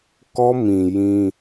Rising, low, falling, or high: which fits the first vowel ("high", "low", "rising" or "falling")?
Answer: high